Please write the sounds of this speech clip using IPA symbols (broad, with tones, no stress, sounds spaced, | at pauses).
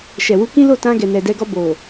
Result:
ʃ ɛ˨ w u˧ k ĩ˦ l o˦˨ t ã˧ ɡ ɛ˨ n ɛ˨ d ɛ˧ ɡ ɔ˧ b o˨